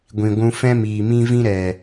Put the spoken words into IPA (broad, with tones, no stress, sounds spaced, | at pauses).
ɡʷ ĩ˨ ɡʷ ũ˧ f ɛ̃˦ m iː˨ m ĩ˦ v ĩ˦ ɾ ɛ˨